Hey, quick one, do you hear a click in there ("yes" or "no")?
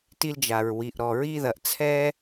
no